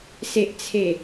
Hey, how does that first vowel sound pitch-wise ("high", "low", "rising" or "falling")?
low